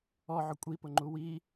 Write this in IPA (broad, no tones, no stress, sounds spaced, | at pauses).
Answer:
ɔ ʕ ʊ kʷʼ i p ʊ ŋ͡ǃ u w i